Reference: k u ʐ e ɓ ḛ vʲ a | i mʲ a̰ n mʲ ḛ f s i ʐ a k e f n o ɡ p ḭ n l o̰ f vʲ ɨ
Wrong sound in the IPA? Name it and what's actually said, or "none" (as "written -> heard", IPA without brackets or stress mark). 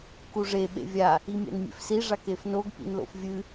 none